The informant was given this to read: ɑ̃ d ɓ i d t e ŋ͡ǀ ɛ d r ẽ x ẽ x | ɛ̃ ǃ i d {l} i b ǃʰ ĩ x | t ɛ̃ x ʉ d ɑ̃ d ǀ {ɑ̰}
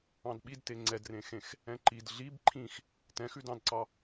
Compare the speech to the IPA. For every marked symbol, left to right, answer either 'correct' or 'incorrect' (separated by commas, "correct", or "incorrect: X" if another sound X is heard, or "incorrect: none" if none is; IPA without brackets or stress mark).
incorrect: ɮ, incorrect: ɑ